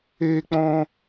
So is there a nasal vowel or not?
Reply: yes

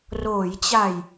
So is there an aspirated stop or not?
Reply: no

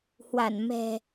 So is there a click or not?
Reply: no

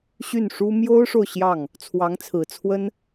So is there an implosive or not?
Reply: no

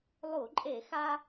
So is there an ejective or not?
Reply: yes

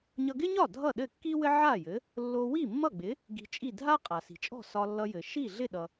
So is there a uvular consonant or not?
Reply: yes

